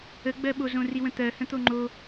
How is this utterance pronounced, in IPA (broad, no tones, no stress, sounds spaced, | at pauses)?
ə ɡ͡b ɜ ɓ o z õ r i w ə̃ t̪ ɜ h ə̃ t̪ o ŋ͡ǃ o